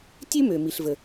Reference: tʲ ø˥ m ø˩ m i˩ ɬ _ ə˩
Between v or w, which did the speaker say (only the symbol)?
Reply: v